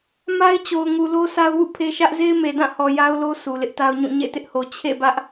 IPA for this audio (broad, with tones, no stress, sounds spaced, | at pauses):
m a˦ ɪ̯ t͡ɕ o˨ ʊ̯ ŋ u˨ l o˦ sʰ a˦ ʊ̯ w ṵ˦˨ pʰ e˦ ʃ ä˦ ʔ z e˦ ɪ̯ m e˨ d ã˦˨ h ɔ˨ j a˦ ʊ̯ l o˦ sʰ u˨ l ɪ˦ ʔ t a˦ ʊ̯ ɲ ũ˦˨ ɲ ḛ˦˨ t ɪ˦ ʔ h o˨ t͡ɕʰ ḛ˦˨ b ä˦ ʔ